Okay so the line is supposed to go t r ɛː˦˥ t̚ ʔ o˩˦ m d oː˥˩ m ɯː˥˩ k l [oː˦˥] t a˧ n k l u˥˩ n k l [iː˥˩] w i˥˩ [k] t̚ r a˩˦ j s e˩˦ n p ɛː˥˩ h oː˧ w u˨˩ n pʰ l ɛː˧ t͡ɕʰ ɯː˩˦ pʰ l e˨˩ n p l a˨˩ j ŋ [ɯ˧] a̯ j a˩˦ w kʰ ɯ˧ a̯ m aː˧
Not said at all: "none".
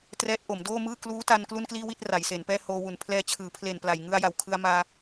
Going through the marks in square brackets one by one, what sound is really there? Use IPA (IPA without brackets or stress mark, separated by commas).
uː˦˥, iː˥˩, none, ɯ˧